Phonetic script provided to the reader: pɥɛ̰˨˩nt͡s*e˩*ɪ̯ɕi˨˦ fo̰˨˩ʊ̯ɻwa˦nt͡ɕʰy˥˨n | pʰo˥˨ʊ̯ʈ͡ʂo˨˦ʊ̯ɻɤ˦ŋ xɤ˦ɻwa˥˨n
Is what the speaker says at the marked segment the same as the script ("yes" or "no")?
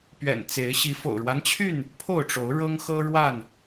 no